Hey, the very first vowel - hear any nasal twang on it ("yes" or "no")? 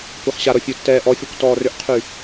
no